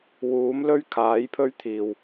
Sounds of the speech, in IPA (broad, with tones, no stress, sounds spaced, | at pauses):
w uː˨˥ m l ɵ˥ ɥ kʰ aː˨˥ j pʰ ɵ˥ ɥ t̪ʰ iː˨ w